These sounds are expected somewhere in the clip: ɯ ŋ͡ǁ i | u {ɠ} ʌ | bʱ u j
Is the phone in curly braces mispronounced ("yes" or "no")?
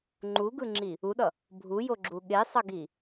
yes